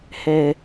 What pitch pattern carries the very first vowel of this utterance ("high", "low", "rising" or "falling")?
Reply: low